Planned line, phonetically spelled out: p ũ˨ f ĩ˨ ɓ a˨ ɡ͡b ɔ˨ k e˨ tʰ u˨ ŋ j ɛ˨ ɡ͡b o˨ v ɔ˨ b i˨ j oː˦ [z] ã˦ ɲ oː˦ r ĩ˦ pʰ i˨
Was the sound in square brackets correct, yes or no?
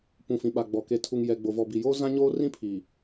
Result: yes